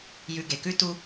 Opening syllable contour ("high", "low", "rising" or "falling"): low